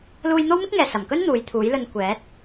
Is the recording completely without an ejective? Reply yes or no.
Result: yes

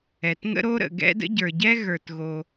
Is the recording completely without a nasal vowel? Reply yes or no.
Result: yes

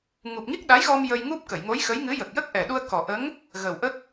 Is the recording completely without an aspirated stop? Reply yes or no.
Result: yes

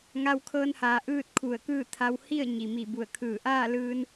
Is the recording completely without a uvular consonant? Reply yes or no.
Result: yes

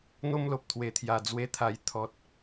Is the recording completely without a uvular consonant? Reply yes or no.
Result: yes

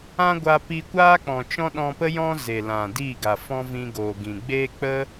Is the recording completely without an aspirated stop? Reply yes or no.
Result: yes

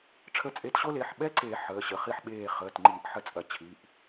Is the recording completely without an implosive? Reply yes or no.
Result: no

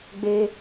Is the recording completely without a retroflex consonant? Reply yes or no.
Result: yes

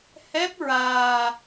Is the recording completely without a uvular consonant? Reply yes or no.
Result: yes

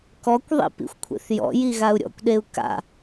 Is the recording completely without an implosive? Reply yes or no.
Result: no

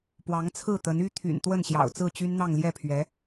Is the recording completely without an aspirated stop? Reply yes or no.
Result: no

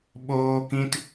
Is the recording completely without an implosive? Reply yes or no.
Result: no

